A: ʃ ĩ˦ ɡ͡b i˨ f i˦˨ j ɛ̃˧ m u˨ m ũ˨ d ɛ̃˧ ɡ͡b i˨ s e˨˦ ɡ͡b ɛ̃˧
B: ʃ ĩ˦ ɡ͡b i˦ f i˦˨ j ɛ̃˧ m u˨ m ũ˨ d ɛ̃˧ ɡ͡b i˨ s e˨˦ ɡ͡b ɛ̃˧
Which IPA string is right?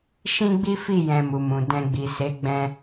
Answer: B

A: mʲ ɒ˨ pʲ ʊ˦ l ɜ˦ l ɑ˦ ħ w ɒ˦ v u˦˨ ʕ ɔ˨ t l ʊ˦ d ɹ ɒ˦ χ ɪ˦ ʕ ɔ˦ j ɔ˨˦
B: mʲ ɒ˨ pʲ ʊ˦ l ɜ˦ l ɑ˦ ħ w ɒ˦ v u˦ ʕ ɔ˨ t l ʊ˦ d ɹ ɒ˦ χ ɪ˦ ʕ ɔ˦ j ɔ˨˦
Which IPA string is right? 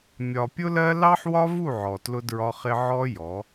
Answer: A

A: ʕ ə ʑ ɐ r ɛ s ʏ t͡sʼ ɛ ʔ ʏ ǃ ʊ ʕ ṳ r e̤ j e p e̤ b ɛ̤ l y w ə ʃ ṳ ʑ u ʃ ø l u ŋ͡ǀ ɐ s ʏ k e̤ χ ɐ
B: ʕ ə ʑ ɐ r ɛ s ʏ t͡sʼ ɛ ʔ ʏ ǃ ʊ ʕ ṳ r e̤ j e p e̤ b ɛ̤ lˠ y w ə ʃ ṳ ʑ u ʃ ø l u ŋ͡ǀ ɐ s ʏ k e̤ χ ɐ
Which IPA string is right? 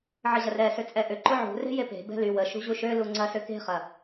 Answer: A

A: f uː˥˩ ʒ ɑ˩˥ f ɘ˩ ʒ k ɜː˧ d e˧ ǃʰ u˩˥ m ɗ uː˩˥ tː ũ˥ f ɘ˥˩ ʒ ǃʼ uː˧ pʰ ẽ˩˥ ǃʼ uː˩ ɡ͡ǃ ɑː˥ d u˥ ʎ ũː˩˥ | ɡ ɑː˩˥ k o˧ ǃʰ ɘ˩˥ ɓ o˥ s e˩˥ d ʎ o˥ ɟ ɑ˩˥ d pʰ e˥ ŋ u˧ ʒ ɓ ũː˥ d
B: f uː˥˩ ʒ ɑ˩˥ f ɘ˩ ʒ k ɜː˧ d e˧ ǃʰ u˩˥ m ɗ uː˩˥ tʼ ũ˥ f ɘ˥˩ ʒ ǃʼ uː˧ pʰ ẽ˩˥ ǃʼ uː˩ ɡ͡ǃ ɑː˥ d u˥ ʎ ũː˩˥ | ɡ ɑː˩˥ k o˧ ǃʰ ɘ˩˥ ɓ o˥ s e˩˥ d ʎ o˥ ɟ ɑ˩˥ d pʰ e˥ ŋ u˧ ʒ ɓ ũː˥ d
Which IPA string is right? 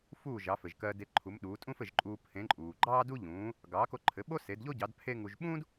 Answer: B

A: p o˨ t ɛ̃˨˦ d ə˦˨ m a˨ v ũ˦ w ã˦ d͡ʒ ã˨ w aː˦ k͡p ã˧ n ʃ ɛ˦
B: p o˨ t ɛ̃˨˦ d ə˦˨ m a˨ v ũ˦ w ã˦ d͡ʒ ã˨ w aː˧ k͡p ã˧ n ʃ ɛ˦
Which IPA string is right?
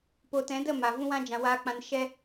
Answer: A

